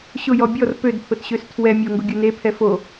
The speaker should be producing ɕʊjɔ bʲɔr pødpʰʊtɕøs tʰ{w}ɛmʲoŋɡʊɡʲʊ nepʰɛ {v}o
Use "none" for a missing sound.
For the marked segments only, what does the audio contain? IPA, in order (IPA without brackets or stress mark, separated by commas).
w, f